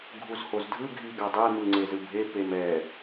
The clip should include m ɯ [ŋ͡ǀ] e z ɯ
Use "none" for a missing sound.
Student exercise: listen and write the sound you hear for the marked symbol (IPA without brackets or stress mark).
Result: ŋ͡ǀ